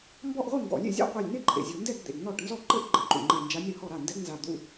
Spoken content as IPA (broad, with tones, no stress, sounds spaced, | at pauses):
m b ɔ˥˧ ʔ ʁʷ e˥˧ ŋ ɡ ɔ̰˨˩˦ lʲ ḛ˥˩ zʲ a̰˥˧ qʷ ɛ˧˩ lʲ n e˥˧ ǃʼ ḛ˩ zʲ u˩ n d ɛ˥˧ ɡ d̪ ḛ˩ ɡ n ɔ˥˩ ʈ n z ɔ˥˩ ǃ ɘ˥˧ ʔ ɡ͡ǃ ɘ˧˩ ǃ ṵ˩ ŋ͡ǃ ɛ˧˩ n d͡ʒ a˧˥ nʲ ɾ ɘ˨˩˦ h ɔ˥˩ ɾ a˥˩ n d ɛ˧˥ ɡ n z a˧˩ d̪ ṵ˥˧